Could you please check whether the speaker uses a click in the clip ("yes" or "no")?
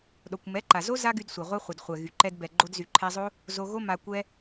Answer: yes